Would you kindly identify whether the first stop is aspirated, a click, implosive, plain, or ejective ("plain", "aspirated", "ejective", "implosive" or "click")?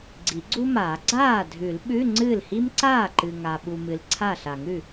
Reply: click